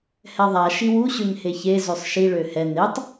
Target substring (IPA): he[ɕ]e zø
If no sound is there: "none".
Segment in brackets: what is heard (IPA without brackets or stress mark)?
ç